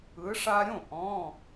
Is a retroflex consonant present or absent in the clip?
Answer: present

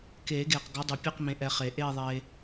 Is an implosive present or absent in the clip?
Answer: absent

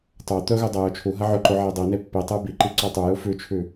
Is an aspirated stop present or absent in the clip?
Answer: present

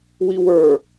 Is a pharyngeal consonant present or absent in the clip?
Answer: absent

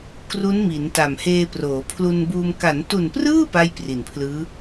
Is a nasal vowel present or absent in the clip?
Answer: absent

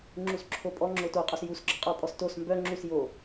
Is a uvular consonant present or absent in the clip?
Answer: present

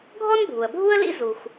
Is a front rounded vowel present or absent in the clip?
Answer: absent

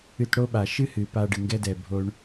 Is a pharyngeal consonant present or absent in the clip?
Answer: absent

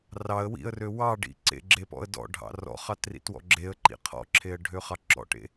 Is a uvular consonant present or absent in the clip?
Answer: present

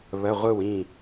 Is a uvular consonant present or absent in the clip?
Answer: present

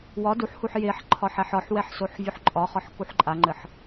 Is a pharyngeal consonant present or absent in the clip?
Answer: present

